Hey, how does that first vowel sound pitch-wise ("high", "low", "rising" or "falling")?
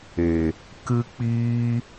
low